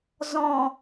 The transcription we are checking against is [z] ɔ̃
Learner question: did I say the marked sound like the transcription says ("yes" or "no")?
yes